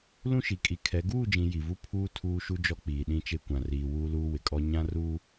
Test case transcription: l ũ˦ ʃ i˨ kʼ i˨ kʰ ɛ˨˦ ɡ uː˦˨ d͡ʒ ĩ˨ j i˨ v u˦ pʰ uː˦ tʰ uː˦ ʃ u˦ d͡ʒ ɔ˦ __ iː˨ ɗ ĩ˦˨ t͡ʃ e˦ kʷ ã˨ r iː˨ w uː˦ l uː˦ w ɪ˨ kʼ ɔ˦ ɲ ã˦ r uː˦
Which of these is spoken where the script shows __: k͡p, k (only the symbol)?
k͡p